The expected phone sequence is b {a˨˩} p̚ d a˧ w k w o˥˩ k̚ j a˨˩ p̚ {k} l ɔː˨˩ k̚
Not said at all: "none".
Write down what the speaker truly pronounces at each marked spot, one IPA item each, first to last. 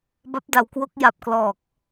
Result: a˦˥, k

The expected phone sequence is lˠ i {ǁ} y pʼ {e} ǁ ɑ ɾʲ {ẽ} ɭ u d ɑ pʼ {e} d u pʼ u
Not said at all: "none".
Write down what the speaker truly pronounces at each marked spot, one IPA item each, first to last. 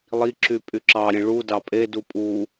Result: ǁ, y, ẽ, e

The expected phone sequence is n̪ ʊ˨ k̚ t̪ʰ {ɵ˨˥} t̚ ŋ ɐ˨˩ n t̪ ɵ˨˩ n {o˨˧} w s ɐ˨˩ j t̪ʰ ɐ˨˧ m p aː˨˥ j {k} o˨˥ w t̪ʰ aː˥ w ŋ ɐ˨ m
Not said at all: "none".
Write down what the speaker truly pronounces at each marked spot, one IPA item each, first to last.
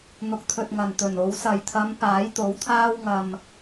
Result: ɵ˨, o˨˧, t̪

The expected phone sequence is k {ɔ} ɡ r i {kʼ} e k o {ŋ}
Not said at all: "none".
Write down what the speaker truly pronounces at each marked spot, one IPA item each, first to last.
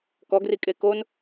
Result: ɔ, kʼ, n

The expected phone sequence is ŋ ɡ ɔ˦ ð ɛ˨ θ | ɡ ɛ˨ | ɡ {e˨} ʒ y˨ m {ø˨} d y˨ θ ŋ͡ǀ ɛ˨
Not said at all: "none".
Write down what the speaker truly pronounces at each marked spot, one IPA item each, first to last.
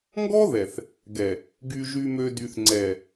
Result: y˨, ø˨

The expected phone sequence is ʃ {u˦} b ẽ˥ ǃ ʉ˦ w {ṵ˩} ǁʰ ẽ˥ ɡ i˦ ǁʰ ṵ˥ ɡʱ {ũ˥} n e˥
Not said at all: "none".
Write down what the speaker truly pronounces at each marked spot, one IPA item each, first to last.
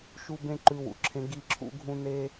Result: u˦, ṵ˩, ũ˥

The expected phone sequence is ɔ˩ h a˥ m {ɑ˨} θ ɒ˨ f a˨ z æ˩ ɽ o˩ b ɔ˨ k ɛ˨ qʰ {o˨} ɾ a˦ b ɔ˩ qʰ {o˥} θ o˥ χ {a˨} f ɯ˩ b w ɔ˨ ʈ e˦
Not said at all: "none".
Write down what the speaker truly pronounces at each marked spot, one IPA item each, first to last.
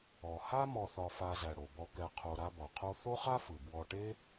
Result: ɔ˨, o˨, o˥, a˥

